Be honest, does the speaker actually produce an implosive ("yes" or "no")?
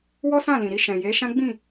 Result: no